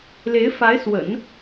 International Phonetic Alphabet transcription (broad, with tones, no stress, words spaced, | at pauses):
le˧˥ɪ̯fa˧˥ɪ̯swə̰˨˩˦n